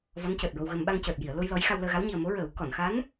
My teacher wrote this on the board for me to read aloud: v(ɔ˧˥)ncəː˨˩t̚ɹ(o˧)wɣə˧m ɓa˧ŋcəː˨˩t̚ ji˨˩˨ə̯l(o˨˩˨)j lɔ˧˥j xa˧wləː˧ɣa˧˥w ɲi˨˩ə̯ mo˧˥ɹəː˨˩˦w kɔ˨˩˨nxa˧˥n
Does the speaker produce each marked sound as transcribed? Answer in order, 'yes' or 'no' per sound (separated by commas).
yes, yes, no